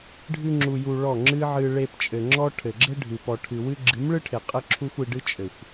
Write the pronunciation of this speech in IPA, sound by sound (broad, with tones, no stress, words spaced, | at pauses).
ɖʱɨ˧ŋ͡ǁu˨ju˨ ɭɔ˦˨ŋ͡ǁɨ˦ʕɨ˧ ɭe˧pt͡ʃʼɘ˨ŋ͡ǁɔ˦ ʈʰɘ˨ɡ͡ǁɘ˦ɖʱɨ˨ pɔ˨ʈʰɨ˨wɨ˦ ɡ͡ǁɨ˨˦mɭɨ˦ʈʰe˨ qʼɘ˦ǁʰu˦xʷi˧ɖɨ˦ t͡ʃʼɘ˨xʷ